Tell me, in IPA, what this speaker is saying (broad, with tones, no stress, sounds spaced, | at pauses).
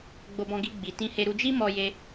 ɡ͡b o˧ b ɔ̃˧ ɡ i˧ ɡ͡b i˧ t ĩ˦ h e˦ ɾ u˧ d͡ʒ i˦ m ɔ˧ j e˧